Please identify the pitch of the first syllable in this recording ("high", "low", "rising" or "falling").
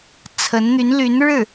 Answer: rising